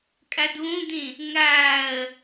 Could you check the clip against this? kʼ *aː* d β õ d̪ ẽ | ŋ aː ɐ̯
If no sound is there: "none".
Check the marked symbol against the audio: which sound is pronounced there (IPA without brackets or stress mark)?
a